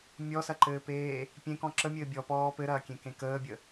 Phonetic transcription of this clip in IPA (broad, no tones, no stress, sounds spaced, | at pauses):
mʲ ɔ s ɐ ǃ ɘː p eː | pʲ ẽ k ɔ̃ ǁ ə mʲ ɘː bʲ ɔ p ɔː p ɘ ɾ ɐː kʲ ẽ k ẽ k əː bʲ ə